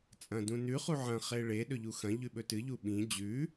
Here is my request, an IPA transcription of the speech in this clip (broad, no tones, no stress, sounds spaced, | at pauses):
t͡sʼ ɐ̃ d ũ n ʉ χ u ʕ ɐ̃ χ e ɭ e ɗ ɵ ʎ u x ɐ̃ ʎ ʉ ɓ ɵ t ɨ ʎ u ɓ ĩ d͡ʑ ʉ